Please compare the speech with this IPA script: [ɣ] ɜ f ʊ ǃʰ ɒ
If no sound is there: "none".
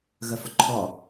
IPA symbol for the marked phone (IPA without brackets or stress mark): ɣ